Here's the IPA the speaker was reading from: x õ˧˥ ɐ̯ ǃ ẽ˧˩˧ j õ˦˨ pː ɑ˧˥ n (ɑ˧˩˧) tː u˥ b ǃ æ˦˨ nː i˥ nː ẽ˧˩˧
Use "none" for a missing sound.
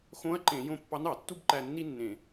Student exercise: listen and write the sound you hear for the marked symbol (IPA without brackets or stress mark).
ɑ˧˩˧